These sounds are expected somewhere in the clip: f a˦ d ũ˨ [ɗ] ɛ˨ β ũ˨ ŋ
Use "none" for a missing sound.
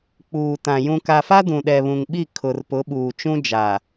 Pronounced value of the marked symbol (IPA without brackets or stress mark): ɗ